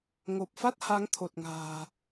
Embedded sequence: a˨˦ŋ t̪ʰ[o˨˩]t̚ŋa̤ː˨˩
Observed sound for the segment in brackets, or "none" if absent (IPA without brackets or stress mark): o˨˩